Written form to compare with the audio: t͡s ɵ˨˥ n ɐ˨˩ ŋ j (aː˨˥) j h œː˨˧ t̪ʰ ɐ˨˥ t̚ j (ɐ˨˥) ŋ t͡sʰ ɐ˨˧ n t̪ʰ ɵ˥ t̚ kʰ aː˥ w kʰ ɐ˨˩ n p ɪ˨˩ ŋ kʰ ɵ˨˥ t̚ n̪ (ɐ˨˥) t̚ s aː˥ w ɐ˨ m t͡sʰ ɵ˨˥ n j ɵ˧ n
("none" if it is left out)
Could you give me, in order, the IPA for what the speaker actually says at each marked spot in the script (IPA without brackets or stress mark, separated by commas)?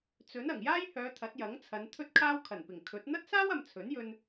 aː˥, ɐ˨˥, ɐ˥